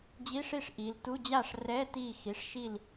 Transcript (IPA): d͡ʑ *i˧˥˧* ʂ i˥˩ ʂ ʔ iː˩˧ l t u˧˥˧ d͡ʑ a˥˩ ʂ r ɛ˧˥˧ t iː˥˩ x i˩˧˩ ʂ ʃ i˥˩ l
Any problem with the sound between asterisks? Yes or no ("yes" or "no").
no